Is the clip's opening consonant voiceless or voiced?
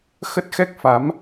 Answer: voiceless